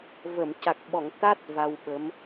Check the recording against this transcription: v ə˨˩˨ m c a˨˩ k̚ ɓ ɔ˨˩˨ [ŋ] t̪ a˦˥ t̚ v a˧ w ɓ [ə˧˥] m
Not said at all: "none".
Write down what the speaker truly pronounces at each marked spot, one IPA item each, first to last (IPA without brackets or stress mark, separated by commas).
ŋ, ə˧˥